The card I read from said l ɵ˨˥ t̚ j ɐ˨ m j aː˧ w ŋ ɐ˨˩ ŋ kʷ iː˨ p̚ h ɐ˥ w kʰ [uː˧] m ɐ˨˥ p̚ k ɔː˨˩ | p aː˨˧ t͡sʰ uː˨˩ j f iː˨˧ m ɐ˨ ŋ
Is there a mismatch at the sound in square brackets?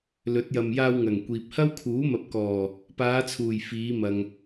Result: yes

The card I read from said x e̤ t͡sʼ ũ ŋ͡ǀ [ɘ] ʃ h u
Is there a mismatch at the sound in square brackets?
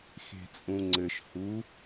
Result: no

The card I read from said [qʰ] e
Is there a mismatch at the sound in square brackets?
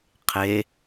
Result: no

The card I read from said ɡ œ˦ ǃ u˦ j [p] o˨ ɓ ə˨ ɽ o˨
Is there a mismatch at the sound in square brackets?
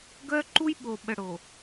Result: yes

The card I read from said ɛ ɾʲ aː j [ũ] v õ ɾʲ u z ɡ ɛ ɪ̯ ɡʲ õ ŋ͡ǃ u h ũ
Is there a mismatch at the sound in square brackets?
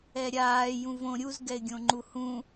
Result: no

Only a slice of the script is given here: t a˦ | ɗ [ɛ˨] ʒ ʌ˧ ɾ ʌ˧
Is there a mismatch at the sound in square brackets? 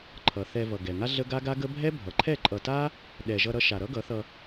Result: no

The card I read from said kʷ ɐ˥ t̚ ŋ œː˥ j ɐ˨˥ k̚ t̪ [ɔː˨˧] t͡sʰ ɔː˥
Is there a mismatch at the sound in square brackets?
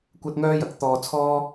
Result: yes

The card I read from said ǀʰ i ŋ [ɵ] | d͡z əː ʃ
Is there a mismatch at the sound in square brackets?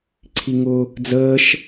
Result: yes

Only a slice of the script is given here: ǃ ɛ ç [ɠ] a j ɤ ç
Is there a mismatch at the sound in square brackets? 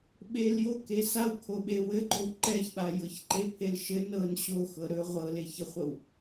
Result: yes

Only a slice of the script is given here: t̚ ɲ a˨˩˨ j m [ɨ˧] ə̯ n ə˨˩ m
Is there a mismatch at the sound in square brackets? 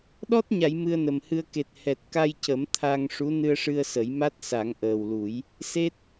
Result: no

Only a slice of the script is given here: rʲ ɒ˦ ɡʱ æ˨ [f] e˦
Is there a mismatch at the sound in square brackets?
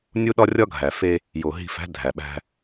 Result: no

